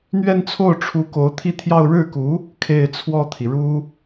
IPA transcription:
n̪ ɥ ɛ˥˧ n t͡sʰ o˥˩ ʊ̯ ʈ͡ʂʰ u˧˥ k o˧˥ ʊ̯ t̪ʰ i˥˧ t̪ʰ j ɑ˥˧ ʊ̯ ɻ ɻ̩˥˩ k u˧˥ | kʰ e˥˧ ɪ̯ t͡sʰ w ɔ˥˩ t̪ʰ i˩ ɻ u˥

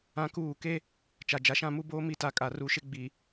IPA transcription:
ã˦ k uː˦˨ k e˦ | t͡ʃ a˨ d͡ʒ a˨ ʃ ã˦˨ m u˦ b oː˦ m i˦˨ t a˦ kʼ a˨ r u˨ ʃ ɪ˦ ɡ͡b i˨

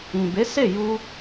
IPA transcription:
ĩ˨ b e˨˦ s e˦˨ j u˧

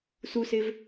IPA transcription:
s u s e v

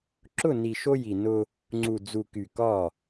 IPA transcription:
ǁ ʊ˦˨ n i˨ ʃ o˦ j i˨ n ʊ˦ | ŋ͡ǀ u˨ d͡z u˨ k y˨ k ɒ˦˨

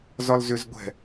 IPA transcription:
z ɒ l z ʏ z ɡʷ ɛ̤

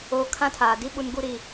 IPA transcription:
oː˦ kʰ ã˦ tʰ aː˨ d i˦ ɓ u˦ n ɡ u˦ ɾ i˦˨

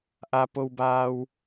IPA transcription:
ʔ a˩ p o˩ w b aː˩ w

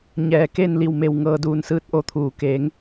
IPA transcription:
ɲ ɛː˩ k e˥˨ n l i˧˩ w m e˧˩ w ŋ ɤː˧ d uː˧ n s ɯː˧˥ t̚ ʔ o˧ t̪ʰ uː˩ k eː˩˧ ŋ

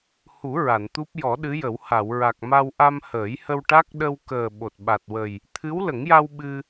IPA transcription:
h u˨˩˦ ɹ a˨˩˨ n t̪ u˦˥ p̚ j ɔ˨˩˦ ɗ ɨ˧˥ j ə˨˩˦ w h a˨˩˨ w ɹ a˨˩ k̚ m a˧ w ʔ a˧ m h əː˨˩˦ j h ə˧ w ʈ a˦˥ k̚ ɗ ə˧ w k əː˨˩ ɓ o˨˩ t̚ ɓ a˨˩ t̚ w ə˨˩ j | t̪ʰ ɨ˧˥ w l ə˨˩˦ ŋ j a˧ w ɓ ɨ˧

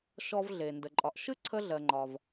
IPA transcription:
ʃ ɔ˧ v ɮ e˩ n d ə˩ ǃʼ ɒ˩ ʔ ʃ ɨ˥ ǀʰ ə˧ ɮ ɜ˩ ŋ͡ǃ ɒ˩ v

